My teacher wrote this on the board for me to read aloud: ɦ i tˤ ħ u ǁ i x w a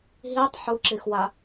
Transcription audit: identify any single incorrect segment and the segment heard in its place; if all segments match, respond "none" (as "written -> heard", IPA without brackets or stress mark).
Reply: none